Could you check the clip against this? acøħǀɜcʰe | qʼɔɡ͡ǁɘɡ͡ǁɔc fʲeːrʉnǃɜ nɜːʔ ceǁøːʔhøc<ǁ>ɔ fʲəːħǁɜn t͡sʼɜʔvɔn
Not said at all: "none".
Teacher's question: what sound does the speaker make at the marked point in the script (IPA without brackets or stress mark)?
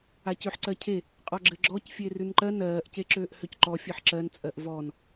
ǃ